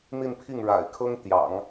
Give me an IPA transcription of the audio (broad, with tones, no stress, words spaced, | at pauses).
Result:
n̪i˥˧npʰi˥˩ŋɻa̰˨˩ɪ̯kʰɤ˥ŋ t̪jɑ̰˨˩˦ŋ